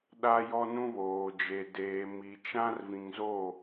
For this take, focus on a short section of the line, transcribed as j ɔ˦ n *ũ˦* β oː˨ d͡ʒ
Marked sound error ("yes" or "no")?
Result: no